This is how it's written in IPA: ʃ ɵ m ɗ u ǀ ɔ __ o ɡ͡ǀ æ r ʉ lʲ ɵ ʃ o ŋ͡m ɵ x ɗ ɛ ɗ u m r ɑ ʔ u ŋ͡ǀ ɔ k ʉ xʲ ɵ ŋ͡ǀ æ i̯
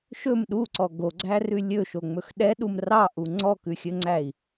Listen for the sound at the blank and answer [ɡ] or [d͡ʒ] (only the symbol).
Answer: ɡ